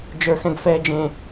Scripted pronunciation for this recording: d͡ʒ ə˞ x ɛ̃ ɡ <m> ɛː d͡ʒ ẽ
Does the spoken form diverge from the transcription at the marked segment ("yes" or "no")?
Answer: yes